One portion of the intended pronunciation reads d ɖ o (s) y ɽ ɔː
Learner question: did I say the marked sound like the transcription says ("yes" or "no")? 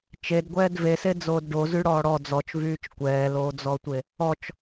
no